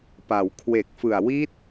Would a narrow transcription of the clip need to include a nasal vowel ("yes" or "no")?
no